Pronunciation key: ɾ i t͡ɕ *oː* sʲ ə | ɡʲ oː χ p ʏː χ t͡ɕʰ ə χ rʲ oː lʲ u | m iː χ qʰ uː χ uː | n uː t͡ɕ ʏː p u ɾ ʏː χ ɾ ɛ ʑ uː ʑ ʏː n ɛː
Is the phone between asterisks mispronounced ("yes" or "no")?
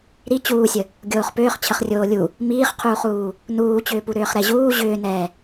yes